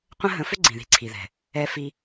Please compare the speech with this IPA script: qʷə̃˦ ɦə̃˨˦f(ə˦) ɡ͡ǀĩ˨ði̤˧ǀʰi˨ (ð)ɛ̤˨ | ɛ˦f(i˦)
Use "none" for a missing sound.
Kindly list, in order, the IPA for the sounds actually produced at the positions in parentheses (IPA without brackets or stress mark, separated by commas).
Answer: ʏ˦, ð, i˦